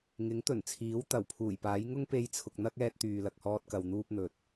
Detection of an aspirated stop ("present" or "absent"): present